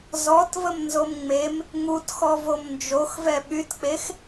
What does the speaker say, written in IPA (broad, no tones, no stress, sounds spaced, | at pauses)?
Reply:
z ɔ t v ə m n z o m ŋ͡m e m | ŋ u t x ɔ v o m n d͡ʒ o x v ɛ ɓ y t k͡p e x